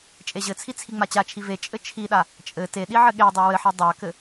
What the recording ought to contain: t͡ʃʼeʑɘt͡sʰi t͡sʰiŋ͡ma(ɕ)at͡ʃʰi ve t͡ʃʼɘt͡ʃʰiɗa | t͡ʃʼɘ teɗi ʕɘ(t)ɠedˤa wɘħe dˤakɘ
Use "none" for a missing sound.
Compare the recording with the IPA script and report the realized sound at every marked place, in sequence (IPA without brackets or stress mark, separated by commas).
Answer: t͡ɕ, none